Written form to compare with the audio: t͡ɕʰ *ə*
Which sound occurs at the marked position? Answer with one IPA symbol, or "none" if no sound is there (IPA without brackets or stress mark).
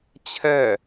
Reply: ɛ